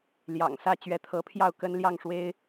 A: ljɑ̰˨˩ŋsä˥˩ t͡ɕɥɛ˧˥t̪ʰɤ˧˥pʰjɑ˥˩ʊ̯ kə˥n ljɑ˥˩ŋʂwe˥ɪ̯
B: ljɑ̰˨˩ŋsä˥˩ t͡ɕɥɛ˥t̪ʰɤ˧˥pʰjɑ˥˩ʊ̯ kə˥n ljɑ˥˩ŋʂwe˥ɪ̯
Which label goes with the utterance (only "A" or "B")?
A